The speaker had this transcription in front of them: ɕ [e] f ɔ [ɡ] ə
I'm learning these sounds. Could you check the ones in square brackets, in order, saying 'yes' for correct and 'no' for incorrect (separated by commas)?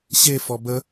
yes, no